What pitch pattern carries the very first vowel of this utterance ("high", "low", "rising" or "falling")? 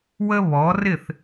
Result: high